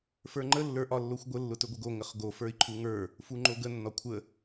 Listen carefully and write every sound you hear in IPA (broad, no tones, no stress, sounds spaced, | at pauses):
f ə˞ ŋ͡ǃ ə lː ə˞ ʔ ɒ lː o xʷ ɡʷ ə lː ʊ t ɵ ɡʷ ə ɡ o ŋ ə χ ɡ o f ə˞ i̯ ǃʰ u ŋ ə˞ | f u ŋ͡ǃ o ɡ ə nː ɒ kʷʰ ə